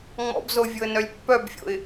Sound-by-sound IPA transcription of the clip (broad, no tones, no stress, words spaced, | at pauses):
ŋ͡mɔ̰bzovʲoə̯nœlʲ pːœbfʲo̰ɪ̯